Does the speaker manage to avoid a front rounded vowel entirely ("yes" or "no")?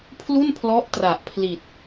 yes